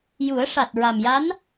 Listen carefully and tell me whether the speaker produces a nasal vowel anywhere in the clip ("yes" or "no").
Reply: no